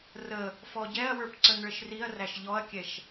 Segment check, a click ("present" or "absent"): present